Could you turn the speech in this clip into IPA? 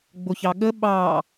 ɡ͡boçɑɠə ɓɑ

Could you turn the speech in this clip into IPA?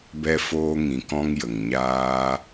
bɛ˧foː˧ŋĩ˨kɔ̃˧ŋ jə˨ŋɲaː˦

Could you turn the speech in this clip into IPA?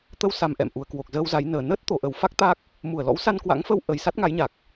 t̪ə˧wsa˨˩m ʔɛ̰˧˨mʔu˨˩ə̯kwo˨˩k̚zəː˧w za˨˦jnəː˨˩ nəː˦˥t̚ t̪o˨˩ʔə˨˩wfa˦˥k̚ t̪a˦˥k̚ | mu˧˩ə̯lɔ̰˧˥w sa˧nkwa̰˧˥ŋfə˧wʔə˨˩j sa˦˥t̚ŋa˨˦jɲa˨˩k̚

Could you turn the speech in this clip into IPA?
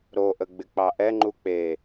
ɾoʔə ɡ͡bɪk͡pɑʔɛŋ͡ǃu k͡pe

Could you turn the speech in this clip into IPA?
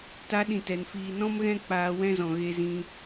ta˨˦ɗĩ˨ tɛ˨nfiː˧ nɔ̃˦mɣɛ̃˦k͡paː˧ wɛ̃˦zɔ̃˨ ɣe˦zĩ˦

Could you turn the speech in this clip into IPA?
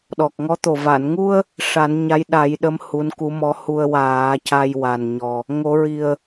ɗɔ˨˩k̚ŋɔ˧˥t̪o˨˩ va˨˩˨nŋu˧ə̯ | ʂa˨˩˦nɲa˧˥jɗa˨˩˦jɗə˧˥m hu˧˥nku˧˥mɔ˧˥ hu˧ə̯waː˨˩˦ ca˧jwa˨˩nɲɔ˨˩ | ŋo˨˩˦ɹi˨˩ə̯

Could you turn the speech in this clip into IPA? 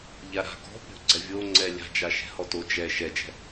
ʎaɾa̤ ɡɔ̤ pʲo̤ ɡ͡ǀɛvʲo ŋ͡ǀɛlʲa̤d͡ʒa ʃɛ̤hɔto d͡ʒɛ ʃɛd͡ʒɛ̤

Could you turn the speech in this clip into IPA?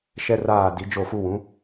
ʃɛ˦raː˦˨di˨˦ d͡ʒo˦˨fu˦ wũ˨˦

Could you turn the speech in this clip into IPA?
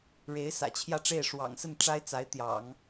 ɻe˧˥ɪ̯sä̰˨˩t͡ɕʰjä˥˧ʈ͡ʂe˥˩ɪ̯ ʂwɑ̰˨˩ŋsə˥˩n ʈ͡ʂa˥ɪ̯t͡sa˧˥ɪ̯ t̪jɑ̰˨˩˦ŋ

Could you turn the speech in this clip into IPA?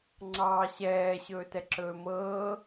ŋ͡ǀɑːɕɛː ɕɵːtɛǁɵːmɤː

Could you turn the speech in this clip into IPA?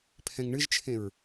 pʰɛ̃ŋɳɨʒt͡ʃʰẽɹ

